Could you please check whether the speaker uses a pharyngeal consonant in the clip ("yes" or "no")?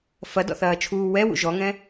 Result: no